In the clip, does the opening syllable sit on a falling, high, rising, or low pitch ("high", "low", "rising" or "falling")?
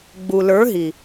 low